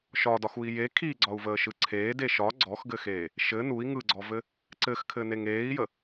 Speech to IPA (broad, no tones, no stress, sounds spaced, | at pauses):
ʃ ɒ d ɒ x u i̯ j e kʰ i ɡ͡ǀ ɒ u̯ v əː ʃ ɯ ǀʰ eː d e ʃ ɒ ɡ͡ǀ ɔ x ɡ ɘ x eː | ʃ ɘ n u i̯ ŋ ɯ ɡ͡ǀ ɔ v ɘ | ǀ ɘ x kʰ ɘ n e ŋ eː i̯ j ə